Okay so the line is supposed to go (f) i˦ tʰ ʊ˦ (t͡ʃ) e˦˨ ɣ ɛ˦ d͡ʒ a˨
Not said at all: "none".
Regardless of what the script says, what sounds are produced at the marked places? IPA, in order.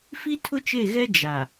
f, t͡ʃ

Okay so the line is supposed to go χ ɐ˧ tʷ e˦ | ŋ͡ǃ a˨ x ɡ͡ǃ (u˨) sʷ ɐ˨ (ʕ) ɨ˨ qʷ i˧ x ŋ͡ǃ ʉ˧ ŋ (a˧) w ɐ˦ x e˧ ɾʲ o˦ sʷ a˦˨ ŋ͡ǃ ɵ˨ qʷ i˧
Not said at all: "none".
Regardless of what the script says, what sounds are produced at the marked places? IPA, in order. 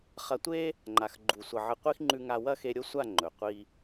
u˨, ʕ, a˧

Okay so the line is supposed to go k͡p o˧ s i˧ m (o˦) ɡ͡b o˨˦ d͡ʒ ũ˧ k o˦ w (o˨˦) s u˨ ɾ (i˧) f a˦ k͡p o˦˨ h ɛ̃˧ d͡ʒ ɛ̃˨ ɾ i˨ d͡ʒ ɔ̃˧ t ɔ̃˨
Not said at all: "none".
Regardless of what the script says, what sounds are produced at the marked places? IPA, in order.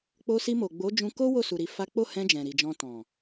o˨, o˦˨, i˧

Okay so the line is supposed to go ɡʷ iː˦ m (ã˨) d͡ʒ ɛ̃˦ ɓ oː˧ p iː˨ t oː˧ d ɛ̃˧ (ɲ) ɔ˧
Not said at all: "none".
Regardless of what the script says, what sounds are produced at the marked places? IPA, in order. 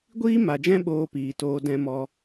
a˨, m

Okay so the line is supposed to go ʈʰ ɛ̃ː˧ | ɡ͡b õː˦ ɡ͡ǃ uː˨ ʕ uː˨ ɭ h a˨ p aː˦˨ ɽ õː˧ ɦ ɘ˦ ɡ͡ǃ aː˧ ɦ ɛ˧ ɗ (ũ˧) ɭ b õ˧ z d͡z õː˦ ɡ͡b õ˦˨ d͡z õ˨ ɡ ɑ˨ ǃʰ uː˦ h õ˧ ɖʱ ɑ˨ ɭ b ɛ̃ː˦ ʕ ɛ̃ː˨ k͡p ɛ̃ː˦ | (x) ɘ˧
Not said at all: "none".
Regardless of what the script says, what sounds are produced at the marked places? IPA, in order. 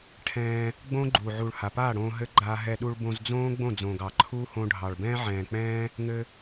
u˧, ŋ

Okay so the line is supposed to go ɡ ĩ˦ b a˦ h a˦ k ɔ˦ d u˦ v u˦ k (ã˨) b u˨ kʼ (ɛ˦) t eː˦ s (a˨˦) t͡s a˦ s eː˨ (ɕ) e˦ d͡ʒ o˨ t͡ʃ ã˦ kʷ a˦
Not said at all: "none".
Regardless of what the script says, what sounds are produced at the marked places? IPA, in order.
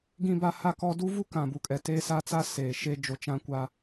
ã˨, ɛ˨, a˦, ʃ

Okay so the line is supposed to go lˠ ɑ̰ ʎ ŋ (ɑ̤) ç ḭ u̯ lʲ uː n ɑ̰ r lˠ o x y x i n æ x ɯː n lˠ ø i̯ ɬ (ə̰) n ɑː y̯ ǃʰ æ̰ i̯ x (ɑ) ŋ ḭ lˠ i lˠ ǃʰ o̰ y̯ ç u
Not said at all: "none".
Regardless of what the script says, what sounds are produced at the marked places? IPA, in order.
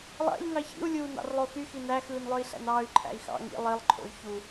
ɑ, æ̰, ɑ̰

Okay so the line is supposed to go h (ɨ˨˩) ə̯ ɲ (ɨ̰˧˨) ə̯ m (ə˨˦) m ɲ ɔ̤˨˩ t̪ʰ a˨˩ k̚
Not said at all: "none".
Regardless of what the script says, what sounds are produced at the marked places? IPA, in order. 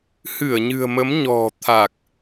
ɨ˧˩, ɨ̤˨˩, ə˨˦

